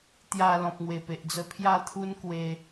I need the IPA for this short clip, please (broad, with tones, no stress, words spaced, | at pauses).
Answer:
t̪ja˧lɔ̃˨p̚ ŋwe˨˩pe˨ʔd͡zə˧ pʰja˥˧t̪ʰu˦n kwe˧